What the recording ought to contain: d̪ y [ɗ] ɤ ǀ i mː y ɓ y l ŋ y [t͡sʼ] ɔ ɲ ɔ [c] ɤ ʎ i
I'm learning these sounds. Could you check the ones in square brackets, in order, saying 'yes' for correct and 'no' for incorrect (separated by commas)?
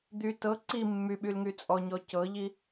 no, yes, yes